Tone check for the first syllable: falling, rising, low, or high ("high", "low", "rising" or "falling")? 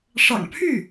low